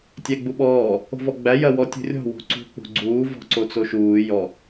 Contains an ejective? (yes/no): no